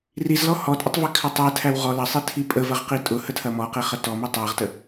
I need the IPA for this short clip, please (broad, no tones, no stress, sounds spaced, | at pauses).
r i z l ɔ h ɔ tʼ ə tˤ v i kʰ ɐ tˤ æ tʰ æ w ʁ ɔ l ɐ sˤ i tʰ i pʼ ə v ɐ ʁ q i tʼ ʊ h ə tʰ ɐ m ɔ q e χ ɐ t ɔ m i tˤ æ ʁ t ə